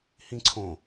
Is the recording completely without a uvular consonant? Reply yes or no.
yes